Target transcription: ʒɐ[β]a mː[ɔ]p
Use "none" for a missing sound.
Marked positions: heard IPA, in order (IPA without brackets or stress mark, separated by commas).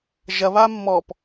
β, ɔ